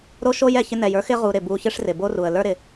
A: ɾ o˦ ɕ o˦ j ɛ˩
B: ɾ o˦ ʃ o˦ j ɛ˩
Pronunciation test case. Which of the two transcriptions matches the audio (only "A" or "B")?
B